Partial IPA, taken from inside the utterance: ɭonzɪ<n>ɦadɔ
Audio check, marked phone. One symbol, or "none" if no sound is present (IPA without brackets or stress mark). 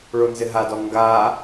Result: none